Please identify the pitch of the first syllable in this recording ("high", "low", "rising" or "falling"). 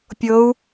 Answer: rising